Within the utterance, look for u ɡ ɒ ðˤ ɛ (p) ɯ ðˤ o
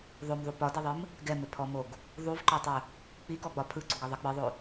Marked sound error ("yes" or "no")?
yes